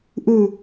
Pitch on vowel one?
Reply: falling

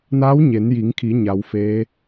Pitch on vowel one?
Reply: rising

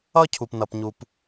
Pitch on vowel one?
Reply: high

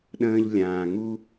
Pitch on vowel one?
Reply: high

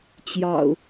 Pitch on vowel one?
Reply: low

